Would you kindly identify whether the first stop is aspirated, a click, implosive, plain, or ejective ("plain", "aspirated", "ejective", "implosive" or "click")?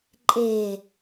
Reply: click